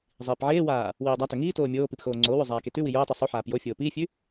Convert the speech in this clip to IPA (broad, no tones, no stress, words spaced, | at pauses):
zˤiːpʕeːwaː | wiːdˤatɵ ŋiːtoː mʲoː pipxoːŋ͡ǀoːwʉ zˤaːketʉwi joːtˤʉ sˤu ħaːpjofʲoː piːfʲʉ